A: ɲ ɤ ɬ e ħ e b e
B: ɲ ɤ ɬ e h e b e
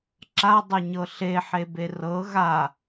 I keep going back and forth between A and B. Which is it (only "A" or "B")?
A